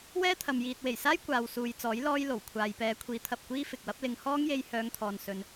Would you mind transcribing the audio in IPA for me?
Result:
w ɛː˥ t̪ʰ ɐ˨ m j iː˨ t̚ w e˨˩ j s aː˥ j kʷ aː˨ w s uː˨ j t͡s ɔː˨˥ j l ɔː˧ j l o˨˩ w kʷʰ aː˨ j p ɛː˨˧ kʷʰ iː˨˥ t̪ʰ ɐ˨ p̚ kʷ iː˥ f ɪ˨ k̚ w ɐ˥ p̚ l ɪ˧ ŋ h ɔː˥ ŋ j e˧ j h œː˨˧ ŋ t̪ʰ ɔː˨ n s ɵ˧ n

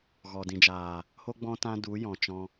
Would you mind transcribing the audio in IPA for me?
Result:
ɣ ɔ˨ d ĩ˨ d͡ʒ aː˨ | h o˦ ɡ͡b ɔ̃˦ t ã˦ d u˨˦ j ɔ̃˨ t͡ʃ ɔ̃˧

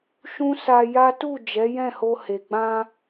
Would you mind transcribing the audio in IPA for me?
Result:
ʃ ũ˦ s a˧ j a˦ t u˦˨ d͡ʒ ɛ˨˦ j ɛ̃˦˨ h o˧ h e˨ ɡ͡b ã˧

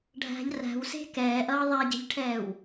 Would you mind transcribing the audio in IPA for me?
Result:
ɖʱ æ̤ ʎ r æ̤ w s e̤ k ɛː ʔ ʌː ðˤ æ ɟ e̤ ʎ ʈʰ ɛː w

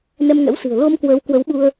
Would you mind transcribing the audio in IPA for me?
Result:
n ɛ˧ m ŋ ɛ̰˧˥ w s ɨ̤˨˩ ə̯ l o˧ m k w əː˨˦ w k w ə˨˦ w ɓ u˧ ə̯

